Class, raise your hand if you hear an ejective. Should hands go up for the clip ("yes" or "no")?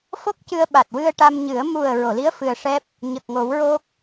no